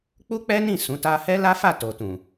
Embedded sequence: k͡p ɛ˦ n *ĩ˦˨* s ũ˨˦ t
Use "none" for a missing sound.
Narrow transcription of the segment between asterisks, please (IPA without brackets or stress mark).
ĩ˦˨